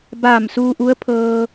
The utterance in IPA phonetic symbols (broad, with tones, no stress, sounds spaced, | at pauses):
b aː˧˩ m s uː˧ ʔ u˧˥ ə̯ pʰ ɤː˧